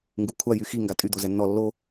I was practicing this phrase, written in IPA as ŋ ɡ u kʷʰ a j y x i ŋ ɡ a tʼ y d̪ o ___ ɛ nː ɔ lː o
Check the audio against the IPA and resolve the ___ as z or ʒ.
z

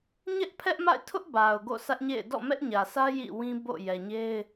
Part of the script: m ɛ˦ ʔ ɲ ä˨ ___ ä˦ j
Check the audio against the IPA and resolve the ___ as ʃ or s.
s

